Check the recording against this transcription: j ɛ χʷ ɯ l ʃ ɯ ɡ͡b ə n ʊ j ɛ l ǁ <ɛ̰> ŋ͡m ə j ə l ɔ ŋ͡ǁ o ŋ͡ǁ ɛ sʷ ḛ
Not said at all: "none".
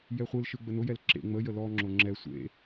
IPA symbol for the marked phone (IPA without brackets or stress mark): ḛ